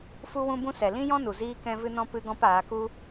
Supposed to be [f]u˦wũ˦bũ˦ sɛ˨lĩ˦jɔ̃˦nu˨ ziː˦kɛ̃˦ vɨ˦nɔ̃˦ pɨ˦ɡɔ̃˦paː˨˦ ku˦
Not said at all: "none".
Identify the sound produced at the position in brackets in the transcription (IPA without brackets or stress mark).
f